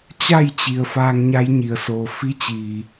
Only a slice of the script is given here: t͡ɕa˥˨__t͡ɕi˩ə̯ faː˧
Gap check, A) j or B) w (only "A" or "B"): A